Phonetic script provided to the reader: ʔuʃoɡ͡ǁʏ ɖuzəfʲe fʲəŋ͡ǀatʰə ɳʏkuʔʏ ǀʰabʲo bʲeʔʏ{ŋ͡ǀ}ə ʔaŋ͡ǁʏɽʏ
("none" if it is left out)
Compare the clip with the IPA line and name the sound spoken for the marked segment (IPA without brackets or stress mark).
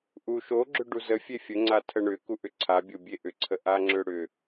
ǀʰ